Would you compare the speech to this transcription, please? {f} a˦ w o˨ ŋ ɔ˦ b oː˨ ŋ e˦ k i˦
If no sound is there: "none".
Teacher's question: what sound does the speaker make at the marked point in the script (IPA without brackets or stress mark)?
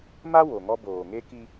m